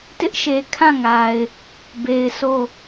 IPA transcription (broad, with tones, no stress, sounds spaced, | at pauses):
t ɪ˦ ʔ ʃ e˨ kʰ ã˦˨ ŋ a˨ ɪ̯ | b e˨ ɪ̯ sʰ o˦˨